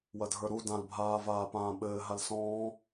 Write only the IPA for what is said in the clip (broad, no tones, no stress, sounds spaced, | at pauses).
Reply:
w ɐ dʱ ə˞ ɾ u d ã l bʱ aː v aː p ãː ɓ ɘː ɦ a l s ɔ̃ː